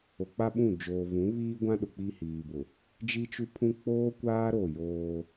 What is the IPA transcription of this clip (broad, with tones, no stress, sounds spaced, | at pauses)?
o˨ k͡p a˦ ɓ ũ˦˨ d͡ʒ oː˨ v ũ˨˦ β iː˦ ɡʷ ã˦ ɗ ʊ˨ k͡p i˦ h iː˨ b ʊ˨ | d͡ʒ i˦ t͡ʃ u˦ pʰ ũ˦ k͡p oː˦ kʷ aː˦ ɾ o˦˨ j oː˦